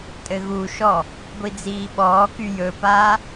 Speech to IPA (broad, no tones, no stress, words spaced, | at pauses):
tʼɘɣuʃɔ | ɡʷid͡ziːɓɔːky jɵpaː